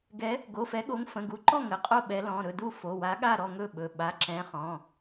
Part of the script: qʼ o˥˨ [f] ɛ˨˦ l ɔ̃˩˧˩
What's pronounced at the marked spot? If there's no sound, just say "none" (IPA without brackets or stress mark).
ɓ